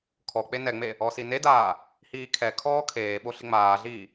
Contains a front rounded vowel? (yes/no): no